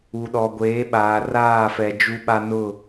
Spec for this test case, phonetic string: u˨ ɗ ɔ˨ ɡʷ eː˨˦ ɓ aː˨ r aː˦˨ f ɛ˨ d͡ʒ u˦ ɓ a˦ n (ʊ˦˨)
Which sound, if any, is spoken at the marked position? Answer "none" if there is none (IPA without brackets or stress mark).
ʊ˦˨